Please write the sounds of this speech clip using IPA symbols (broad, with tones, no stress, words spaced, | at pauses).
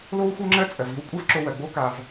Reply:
lo˥wxʷə˞˥ŋ͡ǁɜ˥ t͡sʼɜ˩v i˥wkʷʼɛ˥vǁo˧wɜ˩ ɡ͡bo˥ka˩v